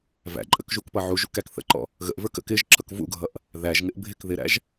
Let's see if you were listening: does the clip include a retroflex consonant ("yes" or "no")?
no